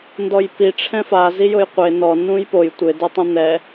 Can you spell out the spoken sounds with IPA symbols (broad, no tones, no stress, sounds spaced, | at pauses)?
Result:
n d ɔ j p i ʈ͡ʂʰ ɛ̃ f a z i j ʊ j qʷ e n ɔ n ũ j p o j tʷ ɪ d e tˤ ũ n̪ ɛ